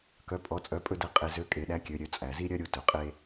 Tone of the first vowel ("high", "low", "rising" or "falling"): rising